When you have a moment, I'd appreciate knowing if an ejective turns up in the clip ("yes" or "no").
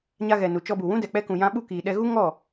no